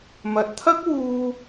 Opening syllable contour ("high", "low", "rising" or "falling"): low